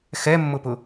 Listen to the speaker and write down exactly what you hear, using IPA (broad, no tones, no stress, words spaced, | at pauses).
xɛmːʊpʊ